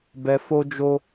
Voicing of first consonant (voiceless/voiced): voiced